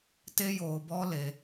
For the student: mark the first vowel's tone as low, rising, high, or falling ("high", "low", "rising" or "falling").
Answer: high